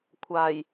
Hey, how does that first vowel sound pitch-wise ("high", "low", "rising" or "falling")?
low